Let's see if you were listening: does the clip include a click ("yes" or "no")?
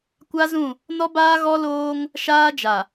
no